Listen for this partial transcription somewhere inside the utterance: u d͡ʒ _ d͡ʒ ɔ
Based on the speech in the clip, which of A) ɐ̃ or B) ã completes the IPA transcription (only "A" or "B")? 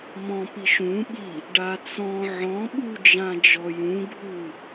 B